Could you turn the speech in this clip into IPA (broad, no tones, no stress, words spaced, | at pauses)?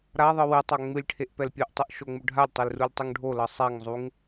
ɾaðˤɯ wɨtˤa ŋ͡mɨlʲʈʰeʔ pɛlpʲɨʔtˤɨʔ ʃoŋ͡muɖʱalʲtˤel rulʲtˤuŋɖʱolɤ sˤaŋzˤuŋ